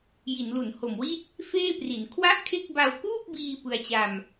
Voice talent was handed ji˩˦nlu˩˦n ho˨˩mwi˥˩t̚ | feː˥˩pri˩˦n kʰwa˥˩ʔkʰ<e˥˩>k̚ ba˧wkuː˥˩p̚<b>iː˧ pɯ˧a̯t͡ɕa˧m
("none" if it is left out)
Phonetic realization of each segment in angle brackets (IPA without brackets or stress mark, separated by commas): e˥˩, b